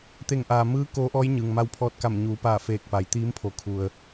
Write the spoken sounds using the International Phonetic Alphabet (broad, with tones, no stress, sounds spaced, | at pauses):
t̪ e˧˩ ŋ ʔ aː˩ m ɯː˧˥ k oː˧˥ ʔ ɔː˧˥ j ɲ ɯː˩ ŋ m a˧ w pʰ ɔː˧ t̚ k a˧˩ m ɲ uː˩˧ p aː˧˩ f eː˧˩ k̚ p a˩˧ j t̪ iː˧˥ m pʰ o˩˧ kʰ u˩ ə̯